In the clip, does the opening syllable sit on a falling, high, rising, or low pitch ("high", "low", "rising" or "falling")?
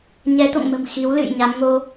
rising